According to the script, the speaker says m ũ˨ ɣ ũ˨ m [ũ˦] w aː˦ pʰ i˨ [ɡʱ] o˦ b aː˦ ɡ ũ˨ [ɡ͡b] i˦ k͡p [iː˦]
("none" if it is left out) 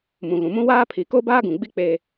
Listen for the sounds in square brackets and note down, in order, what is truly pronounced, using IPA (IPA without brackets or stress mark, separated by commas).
ũ˦, k, ɡ͡b, eː˦